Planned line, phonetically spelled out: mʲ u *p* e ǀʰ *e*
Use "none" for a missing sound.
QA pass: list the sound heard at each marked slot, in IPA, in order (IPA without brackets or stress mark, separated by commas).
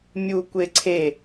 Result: kʷ, e